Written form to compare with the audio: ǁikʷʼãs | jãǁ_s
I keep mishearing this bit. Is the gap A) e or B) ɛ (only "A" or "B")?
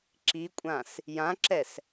B